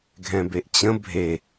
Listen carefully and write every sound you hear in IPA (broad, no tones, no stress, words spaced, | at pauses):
ɡʱɛ̃beʔt͡ɕə̃ bʱe